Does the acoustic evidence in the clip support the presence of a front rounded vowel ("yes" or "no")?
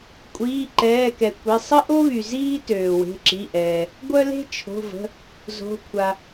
yes